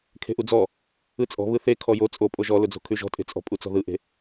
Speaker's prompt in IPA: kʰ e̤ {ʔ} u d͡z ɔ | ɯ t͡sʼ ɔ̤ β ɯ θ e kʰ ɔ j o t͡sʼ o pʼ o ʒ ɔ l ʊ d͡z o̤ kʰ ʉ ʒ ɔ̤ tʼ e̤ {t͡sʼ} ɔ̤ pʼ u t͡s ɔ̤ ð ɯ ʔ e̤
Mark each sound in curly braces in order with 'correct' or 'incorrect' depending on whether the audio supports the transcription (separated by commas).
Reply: correct, correct